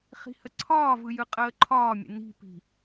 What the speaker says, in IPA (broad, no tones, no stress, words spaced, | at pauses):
χi̤həǀʰɒːvɯ jɯqʼəːǃʰɒːmʲə̰ ni̤pi̤